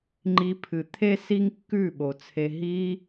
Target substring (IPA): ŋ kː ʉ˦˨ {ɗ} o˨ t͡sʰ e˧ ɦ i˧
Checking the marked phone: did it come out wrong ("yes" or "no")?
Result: yes